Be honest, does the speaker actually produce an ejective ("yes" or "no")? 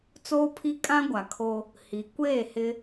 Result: yes